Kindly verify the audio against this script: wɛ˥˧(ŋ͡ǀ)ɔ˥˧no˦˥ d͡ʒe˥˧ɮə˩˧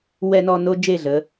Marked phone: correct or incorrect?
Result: incorrect